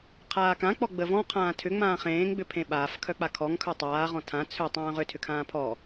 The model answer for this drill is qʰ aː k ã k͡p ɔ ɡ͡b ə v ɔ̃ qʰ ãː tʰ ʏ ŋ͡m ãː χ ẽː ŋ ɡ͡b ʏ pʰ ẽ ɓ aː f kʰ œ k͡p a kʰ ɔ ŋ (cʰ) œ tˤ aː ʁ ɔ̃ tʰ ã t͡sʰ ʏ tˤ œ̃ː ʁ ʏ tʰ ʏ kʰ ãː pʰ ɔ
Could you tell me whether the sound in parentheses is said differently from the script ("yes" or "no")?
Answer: yes